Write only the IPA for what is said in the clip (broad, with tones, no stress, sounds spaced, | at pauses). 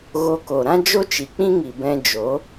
ɣ o˧ k o˨ ɾ ã˦ d͡ʒ o˦ t͡ʃ i˨ k͡p ĩ˦ ŋ i˨ b ɛ̃˧ d͡ʒ o˨˦